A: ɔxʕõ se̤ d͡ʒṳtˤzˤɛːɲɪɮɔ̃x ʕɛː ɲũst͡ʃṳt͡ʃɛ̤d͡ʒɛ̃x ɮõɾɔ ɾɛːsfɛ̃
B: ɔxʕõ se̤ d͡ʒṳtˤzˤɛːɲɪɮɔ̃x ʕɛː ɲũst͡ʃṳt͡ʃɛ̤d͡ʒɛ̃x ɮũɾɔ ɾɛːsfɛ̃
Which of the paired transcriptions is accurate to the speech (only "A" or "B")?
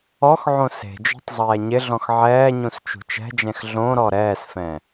A